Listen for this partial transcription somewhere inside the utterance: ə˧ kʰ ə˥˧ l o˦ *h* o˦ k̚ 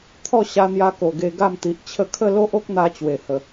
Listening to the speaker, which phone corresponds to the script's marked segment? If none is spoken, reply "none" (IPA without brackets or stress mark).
ʔ